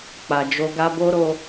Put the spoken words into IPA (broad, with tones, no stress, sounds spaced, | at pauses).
k͡p a˨ d͡ʒ o˧ ɡ a˦ b o˦ ɾ o˧